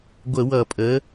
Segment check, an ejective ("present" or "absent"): present